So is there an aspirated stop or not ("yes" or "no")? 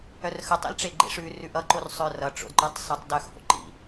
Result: no